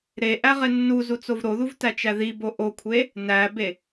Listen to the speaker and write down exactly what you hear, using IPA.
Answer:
ɾeʔæ ʁenːuzu t͡sovɾoðuv tæt͡ʃæðibo ʔokʷʰe | næbe

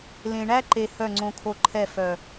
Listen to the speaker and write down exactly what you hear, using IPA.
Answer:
lẽ˨ɳæ˦ǃe˨ hœ˦˨ ŋ͡ǀõ˦kʰo˦ ǃʰɛ˦˨ fœ˨

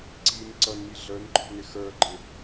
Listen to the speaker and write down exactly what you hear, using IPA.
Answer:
ǀin ǀʌnmi ɮə˞nǃʰɔ̤nɪ xə˞ɡ͡ǃɪ

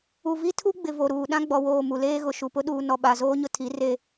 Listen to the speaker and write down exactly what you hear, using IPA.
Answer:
u˨ vi˦tʰu˦ɡ͡bɪ˨ vo˨ɾuː˨ ɗã˦ɡ͡bɔ˨woː˨ mu˨leː˦ɣʊ˨ ʃu˨pʊ˦ɗuː˨ nɔ˨ɓa˨zoː˦ɲʊ˨ tʰi˨˦ re˦

